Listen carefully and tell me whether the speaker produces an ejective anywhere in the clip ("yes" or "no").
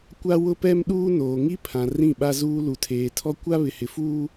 no